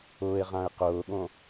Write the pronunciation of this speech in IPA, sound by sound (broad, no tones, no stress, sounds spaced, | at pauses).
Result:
ʊː e̯ ʁ ã e̯ q ʊː ɠ õ